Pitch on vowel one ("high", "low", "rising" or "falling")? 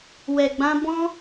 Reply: low